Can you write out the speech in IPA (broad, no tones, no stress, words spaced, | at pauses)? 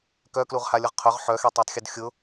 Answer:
kœkluʁhalʲʊʁ qʰʊʁ ħœxetˤatˤxʲʊd xʲʊ